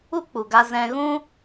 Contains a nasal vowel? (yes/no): yes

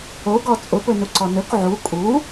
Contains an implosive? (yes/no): no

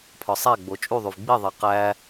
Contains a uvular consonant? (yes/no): yes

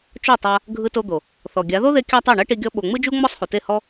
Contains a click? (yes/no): no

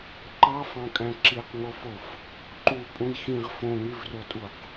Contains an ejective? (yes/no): yes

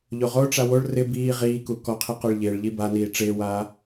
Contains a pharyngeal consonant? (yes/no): no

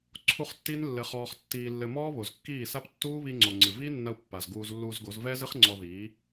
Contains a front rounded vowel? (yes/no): no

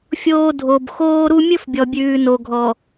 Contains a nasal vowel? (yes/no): no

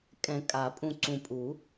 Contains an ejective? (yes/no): yes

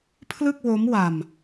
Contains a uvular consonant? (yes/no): no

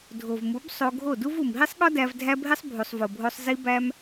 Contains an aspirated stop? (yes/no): no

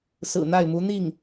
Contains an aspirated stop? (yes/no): no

